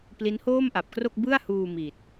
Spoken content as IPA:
pli˦˥nhoː˥˩mʔa˨˩p̚kro˥˩k̚ bɯ˥˩a̯huː˧ miː˨˩t̚

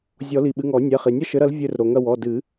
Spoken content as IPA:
zʲɔ˨˩˦li˩ɓɨ˩˧˩ŋ ɔ˨˩˦nʲɛ˩˧˩χi˩ nʲɐ˥ʃɘ˨˥ɾɐ˨˥l vʲɘ˦˨r ɾo˩ŋɐ˦˨wɔ˩˧˩ dɨ˨˩˦

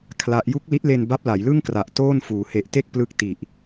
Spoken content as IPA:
kʰla˦˥ʔ ju˦˥k̚li˦˥t̚le˧n ba˦˥p̚la˩˦jlɯ˥˩ŋkra˨˩ʔ toː˥˩nfuː˩˦ he˨˩ʔte˥˩k̚ plɯ˦˥k̚ ti˨˩ʔ

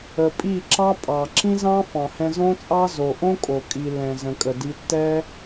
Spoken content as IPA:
ə˨ pʼi˦˨ǁɑ˦pʼɑ˨ ǁĩ˦zɑ̃˦fɑ̃˨hɛ̃˧ zõ˦t͡sʼɑ˦ zo˨ʔõ˦ kʼo˨kʼi˨lːɛ̃˨ zə̃˨ kʼə˨di˧ tːɛ˦

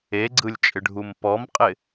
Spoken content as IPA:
eɡ͡ǀɯlʲt͡ʃʼɪɖʱum pɔmqʼɪ

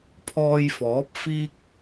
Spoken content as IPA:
pʰɔː˧jfɔː˨˥p̚ fiː˥k̚

